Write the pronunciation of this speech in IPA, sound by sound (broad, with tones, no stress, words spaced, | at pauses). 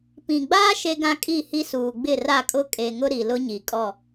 pĩ˨ɡ͡baː˦ ʃe˦ɡã˦kʼi˦˨hi˦ suː˨ɡ͡bɪ˦˨ra˦˨kʼʊ˦ kʼe˨ŋʊ˦ ɾi˨lʊ˦ɲi˨kʼɔ˦˨